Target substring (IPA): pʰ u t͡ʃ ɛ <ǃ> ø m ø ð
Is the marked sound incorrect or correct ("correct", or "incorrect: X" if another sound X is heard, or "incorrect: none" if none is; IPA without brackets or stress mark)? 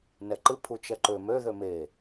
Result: correct